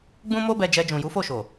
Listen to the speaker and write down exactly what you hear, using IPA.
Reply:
ɡ͡b ũ˦ m o˦ b ɛ˧ d͡ʒ ɛ˧ d͡ʒ ũ˨ j u˨˦ f o˦˨ ʃ o˨

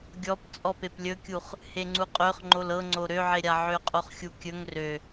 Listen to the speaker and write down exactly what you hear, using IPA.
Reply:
ɡʲ ɔ p t͡sʼ ɔ p e p lʲ ɵ kʲ u χ | h e ŋ͡ǀ u qʼ ø χ ŋ͡ǃ o l ɤ ŋ͡ǀ o ɾ ø ʕ e ɾʲ a ʕ ø qʼ o χ xʲ u kʲ ɵ ŋ r ø

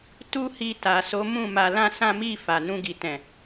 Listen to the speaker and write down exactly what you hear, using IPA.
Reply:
t u˦ h i˧ t a˨ s o˨˦ m ũ˦˨ m a˧ l ã˦ s ã˦ m i˦˨ f a˨ n ũ˧ ɡ i˨ t ɛ̃˨

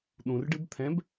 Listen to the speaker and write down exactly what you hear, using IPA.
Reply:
ɗ ũ r ɖ ɨ b t̪ʰ ɛ̃ b

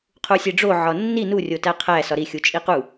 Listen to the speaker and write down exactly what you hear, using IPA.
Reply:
qʰ u sʲ e ɖ͡ʐ o ʕ ɒ nː i n u rʲ o t æ qʰ æ s ɒ ɾ i xʲ u t͡ʃʼ i q u

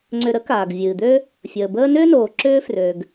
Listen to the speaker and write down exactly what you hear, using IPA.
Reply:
ŋ͡ǀ ʏ˨ ɾ ə˥ k aː˩ ɡ vʲ ɨː˩ d̪ ø˦ | fʲ əː˩ b əː˦ n ʏː˥ n oː˩ ǁ ʏː˦ f r ø˩ ɡ

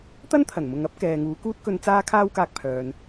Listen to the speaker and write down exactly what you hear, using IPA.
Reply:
t̪ ɐ˥ n t̪ʰ ɐ˨˩ n m ʊ˨ ŋ ɐ˥ p̚ k ɛː˨ ŋ uː˨˧ k uː˥ t̚ k ɵ˧ n t͡s aː˥ kʰ aː˥ w k aː˧ k̚ pʰ œː˨ n

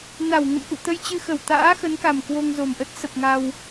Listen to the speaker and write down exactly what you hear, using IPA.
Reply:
n a˧˩ w ŋ ə̰˧˨ n ʔ ṵ˧˨ t̪ ə˧ j t͡ɕ ɨ˧ x ə˧˩ w t̪ a̰ː˧˥ x ə˨˦ n k a˨˩ m k w o˧ ŋ z o˨˩ m ʔ ə˦˥ t̚ s ə˨˩ p̚ ŋ a˧ w

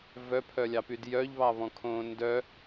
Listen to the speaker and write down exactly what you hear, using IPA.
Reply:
v œ pʰ œ lʲ ɑ p y d j œ ʎ β ɑ β ɔ̃ kʰ õː n d œ

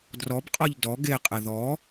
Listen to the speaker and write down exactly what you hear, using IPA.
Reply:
d r ɔ b qʼ ɔ ʎ d ɔ ɡ e qʼ ɪ ð ɔ

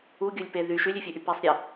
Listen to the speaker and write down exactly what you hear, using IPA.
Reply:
u ɡʲ u lʲ p e ð y ʃ y lʲ y fʲ ø ʔ y p e sˤ ɾʲ e

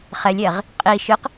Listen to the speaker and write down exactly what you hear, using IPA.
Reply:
χ ɛ lʲ ɛ ʁ | qʼ i ʃ ɨ q

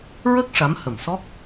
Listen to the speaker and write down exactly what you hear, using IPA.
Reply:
ɹ ə˦˥ k̚ ʂ a˧˥ m h ə˨˩ m s ɔ˦˥ k̚

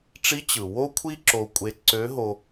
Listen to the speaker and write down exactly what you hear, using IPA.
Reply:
ʈ͡ʂ i˧˥ t͡ɕ ɯ˩ w o˥ kʷʰ i˥ ǁ o˧ kʷʼ e˧ ǀ ø˧˥ ɦ o˧

